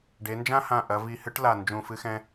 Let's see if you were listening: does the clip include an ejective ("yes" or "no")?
no